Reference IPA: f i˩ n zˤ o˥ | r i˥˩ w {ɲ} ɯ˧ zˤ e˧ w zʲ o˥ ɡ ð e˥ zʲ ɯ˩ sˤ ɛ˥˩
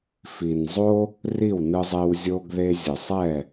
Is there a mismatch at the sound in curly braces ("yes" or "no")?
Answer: yes